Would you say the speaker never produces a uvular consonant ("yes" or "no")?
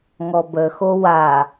yes